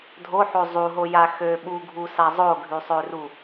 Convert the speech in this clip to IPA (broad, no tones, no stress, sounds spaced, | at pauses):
dʱ o ħ o zˤ u ɦ o j a x ø ɓ u ɡʱ u s a zˤ o ɡʱ y sˤ ø r u